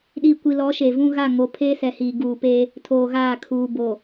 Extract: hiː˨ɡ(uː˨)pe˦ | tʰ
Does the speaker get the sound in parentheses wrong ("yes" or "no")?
no